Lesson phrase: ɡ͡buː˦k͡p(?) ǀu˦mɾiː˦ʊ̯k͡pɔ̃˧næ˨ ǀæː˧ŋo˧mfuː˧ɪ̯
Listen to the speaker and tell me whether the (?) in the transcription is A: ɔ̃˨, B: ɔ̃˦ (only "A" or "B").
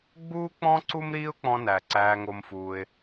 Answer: B